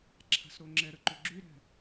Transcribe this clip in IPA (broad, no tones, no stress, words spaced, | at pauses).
ǁʰa̤sɾoŋ͡ǁɛɾə ǃʏɡ͡ǁyɾɛ̤